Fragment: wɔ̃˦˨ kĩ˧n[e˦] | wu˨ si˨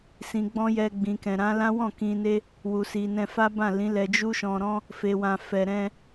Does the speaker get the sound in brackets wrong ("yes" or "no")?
no